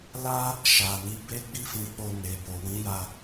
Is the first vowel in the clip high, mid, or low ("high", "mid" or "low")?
low